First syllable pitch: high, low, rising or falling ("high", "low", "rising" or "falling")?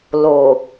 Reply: low